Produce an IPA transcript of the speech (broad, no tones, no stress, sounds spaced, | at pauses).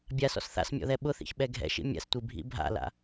bʲ a s ɔ̰ s θ a̰ s mʲ ɔ̰ ð ɛ ɓ ʊ θ ḭ ç ɓ ɛ ɡʱ ɛ̰ ʃ ḭ mʲ a̰ s tʷ i bʱ ḭ bʱ a̰ l a̰